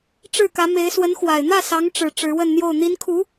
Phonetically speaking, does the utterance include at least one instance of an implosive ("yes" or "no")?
no